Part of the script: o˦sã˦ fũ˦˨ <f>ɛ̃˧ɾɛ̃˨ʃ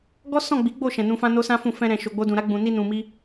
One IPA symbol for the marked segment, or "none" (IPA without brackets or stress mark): f